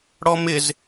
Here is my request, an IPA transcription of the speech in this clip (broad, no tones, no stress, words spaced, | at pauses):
ɽɔmɪz